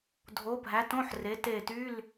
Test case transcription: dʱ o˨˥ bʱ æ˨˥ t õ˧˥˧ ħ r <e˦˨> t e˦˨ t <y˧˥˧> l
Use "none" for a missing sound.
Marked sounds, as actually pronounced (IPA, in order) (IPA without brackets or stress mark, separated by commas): e˨˥, y˧˥˧